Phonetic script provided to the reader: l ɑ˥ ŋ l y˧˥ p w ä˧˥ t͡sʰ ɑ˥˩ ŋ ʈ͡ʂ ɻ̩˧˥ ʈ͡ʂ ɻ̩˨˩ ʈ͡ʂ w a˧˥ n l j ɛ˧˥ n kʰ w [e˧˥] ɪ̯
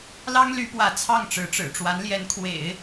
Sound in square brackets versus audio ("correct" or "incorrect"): incorrect